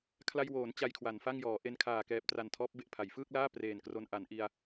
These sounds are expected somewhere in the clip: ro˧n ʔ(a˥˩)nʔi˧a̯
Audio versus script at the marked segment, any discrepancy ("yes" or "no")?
yes